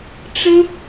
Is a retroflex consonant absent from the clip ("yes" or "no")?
no